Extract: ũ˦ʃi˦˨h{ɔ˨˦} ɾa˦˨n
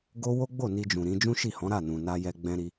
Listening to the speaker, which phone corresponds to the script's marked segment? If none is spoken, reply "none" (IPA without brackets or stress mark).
ɔ̃˨˦